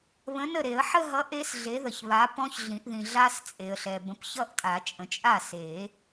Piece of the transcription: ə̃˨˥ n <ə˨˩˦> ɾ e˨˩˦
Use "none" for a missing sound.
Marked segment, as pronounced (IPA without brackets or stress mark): ə˥˩